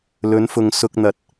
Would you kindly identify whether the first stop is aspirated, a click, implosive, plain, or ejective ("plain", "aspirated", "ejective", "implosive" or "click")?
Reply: plain